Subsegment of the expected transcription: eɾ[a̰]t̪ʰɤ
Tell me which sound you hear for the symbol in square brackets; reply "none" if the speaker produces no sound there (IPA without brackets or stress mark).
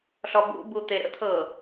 ə̰